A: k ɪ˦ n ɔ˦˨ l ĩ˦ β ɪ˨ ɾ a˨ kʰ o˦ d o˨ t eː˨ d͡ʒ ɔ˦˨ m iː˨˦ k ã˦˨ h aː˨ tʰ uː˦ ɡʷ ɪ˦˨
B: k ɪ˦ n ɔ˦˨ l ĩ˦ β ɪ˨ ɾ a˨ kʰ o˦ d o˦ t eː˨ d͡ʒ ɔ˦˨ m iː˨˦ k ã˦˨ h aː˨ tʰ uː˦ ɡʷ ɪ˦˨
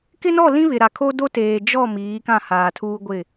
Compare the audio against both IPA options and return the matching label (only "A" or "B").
B